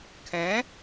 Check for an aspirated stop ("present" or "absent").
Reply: present